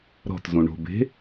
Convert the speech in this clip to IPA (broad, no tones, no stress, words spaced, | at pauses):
ɾɔ̤tzũ ɳo̤be̤